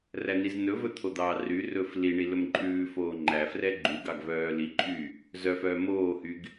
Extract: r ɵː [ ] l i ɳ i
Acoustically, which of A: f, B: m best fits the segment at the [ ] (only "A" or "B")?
A